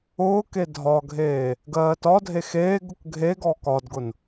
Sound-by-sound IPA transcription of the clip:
ʊːke dʱɒɡʱeː | ɡɜːtɒdʱe xeːɡʊk ɡʱeɡɔ kɒdɡʊn

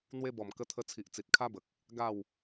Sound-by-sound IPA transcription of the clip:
n̪we˧bɔ˨˩m kə˧t̪ʰə˧t͡sʰi˨ʔ t͡si˨t̚kʰa˦bə˨k̚ | ɡa˥˧w

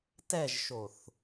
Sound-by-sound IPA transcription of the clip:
tɛʒʃoθ

